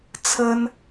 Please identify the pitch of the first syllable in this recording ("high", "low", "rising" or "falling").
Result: high